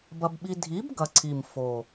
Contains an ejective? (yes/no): no